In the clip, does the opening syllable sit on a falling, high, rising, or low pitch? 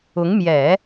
rising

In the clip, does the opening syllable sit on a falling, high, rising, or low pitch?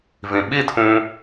low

